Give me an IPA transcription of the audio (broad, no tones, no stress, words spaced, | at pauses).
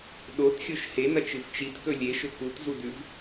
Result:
ɗotxʲoʃ henɐt͡ʃɨv t͡ʃitkɵ lʲeʃɵ kutzudʉv